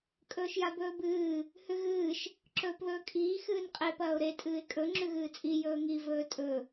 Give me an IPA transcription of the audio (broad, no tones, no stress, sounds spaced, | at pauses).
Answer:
kʼ ɵː ʃ j a b ɵː b ɨː | h ʉ ɣ ɨː ʃ | ǁ ɵː p ð ɵː kʼ iː x ɨː n qʼ e p ɐː ʊ̯ ɾ e tʼ ɨː ɪ̯ kʼ ɵ ŋ͡ǁ ʉ ɣ ɨː t͡sʼ i j ɵː ŋ i v ɵː tʼ ɵ